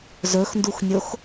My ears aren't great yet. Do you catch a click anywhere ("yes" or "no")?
no